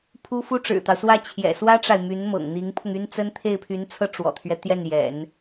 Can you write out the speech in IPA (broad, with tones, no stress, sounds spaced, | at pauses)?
pʰ u˥ f u˥ ʈ͡ʂ ɻ̩˨˩ t̪ ɑ˦ ʊ̯ s w ä˥˩ t͡ɕʰ j ɛ̰˨˩ s w ä˥ ʈ͡ʂ a˨ ɪ̯ m y˧˥ n m ɤ̰˨˩ ŋ n̪ i˧˥ ŋ pʰ ʊ˧ ŋ y˥ n t͡s ə˥ n t̪ʰ e˥˩ ɪ̯ pʰ y˧˥ n t͡sʰ ɤ˥˩ ʈ͡ʂ w ɔ̰˨˩ t̪ʰ ɥ ɛ˦ t̪ j ɛ˥˩ n j ɛ̰˨˩˦ n